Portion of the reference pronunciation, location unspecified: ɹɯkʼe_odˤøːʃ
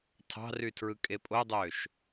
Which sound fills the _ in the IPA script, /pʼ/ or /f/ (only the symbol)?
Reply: pʼ